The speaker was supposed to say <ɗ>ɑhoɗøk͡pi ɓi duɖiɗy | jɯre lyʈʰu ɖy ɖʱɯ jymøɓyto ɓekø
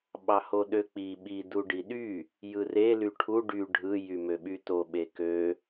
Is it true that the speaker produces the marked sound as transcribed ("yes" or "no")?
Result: no